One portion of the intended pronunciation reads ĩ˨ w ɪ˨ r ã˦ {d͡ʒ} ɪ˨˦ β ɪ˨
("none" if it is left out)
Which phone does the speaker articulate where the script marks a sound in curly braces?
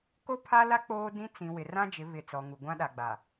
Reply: d͡ʒ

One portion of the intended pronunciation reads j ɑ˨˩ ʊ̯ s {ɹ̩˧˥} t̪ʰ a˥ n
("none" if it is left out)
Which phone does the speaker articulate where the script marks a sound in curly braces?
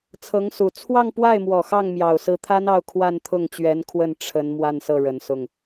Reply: ɹ̩˧˥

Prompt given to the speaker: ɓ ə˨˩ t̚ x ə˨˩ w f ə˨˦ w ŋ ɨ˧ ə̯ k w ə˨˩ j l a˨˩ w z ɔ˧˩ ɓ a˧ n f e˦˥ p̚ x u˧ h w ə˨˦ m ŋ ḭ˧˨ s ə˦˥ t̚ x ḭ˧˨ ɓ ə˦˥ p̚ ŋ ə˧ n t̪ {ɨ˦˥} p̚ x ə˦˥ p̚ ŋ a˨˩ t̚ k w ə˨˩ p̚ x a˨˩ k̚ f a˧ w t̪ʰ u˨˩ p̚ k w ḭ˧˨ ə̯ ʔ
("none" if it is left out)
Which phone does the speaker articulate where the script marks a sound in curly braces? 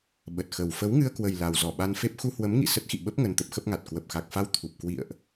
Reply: ə˦˥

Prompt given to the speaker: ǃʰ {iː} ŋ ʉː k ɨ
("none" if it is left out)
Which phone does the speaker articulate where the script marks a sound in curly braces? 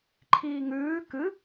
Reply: iː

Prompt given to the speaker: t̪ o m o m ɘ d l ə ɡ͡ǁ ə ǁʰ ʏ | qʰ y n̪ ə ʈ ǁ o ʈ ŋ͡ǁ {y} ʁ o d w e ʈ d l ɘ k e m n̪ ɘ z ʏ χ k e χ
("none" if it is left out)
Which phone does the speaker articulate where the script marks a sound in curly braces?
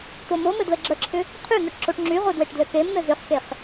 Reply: y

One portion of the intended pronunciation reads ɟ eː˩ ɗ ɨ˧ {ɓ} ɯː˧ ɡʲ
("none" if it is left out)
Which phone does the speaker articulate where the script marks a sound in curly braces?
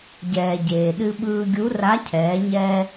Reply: ɓ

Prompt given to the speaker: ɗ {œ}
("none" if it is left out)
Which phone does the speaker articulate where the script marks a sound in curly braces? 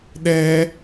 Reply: ɛ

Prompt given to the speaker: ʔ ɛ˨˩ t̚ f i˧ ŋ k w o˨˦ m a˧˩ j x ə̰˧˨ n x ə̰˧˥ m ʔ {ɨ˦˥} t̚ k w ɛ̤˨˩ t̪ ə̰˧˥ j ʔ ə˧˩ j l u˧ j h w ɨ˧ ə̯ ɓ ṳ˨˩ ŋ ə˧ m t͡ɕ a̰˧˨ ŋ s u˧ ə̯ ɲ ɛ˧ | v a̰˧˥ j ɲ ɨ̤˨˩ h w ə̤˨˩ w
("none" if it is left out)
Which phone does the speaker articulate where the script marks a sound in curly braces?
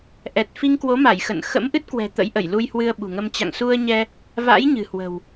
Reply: ɨ˦˥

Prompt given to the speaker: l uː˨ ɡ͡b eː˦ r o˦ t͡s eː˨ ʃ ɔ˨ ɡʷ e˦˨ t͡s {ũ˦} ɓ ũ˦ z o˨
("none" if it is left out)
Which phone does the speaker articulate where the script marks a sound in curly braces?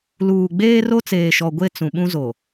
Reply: ũ˨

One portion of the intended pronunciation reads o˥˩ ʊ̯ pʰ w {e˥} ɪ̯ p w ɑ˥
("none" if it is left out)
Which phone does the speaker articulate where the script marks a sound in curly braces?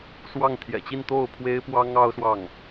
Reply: e˥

